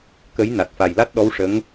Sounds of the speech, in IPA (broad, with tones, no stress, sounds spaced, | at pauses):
k ə˧˥ j n a˨˩ t̚ f a˨˩ j l a˦˥ t̚ ɗ ɔ˧˥ w ʂ ə˧˥ ŋ